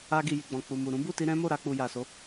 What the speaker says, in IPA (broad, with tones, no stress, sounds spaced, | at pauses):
a˧ ɡ i˨ j i˨ ɡ͡b ɔ̃˨ k͡p u˨ m u˨ ɾ ũ˨˦ b u˦˨ t i˧ ɾ ɛ̃˦ m o˦˨ ɾ a˧ k͡p u˨ j a˨ s o˨˦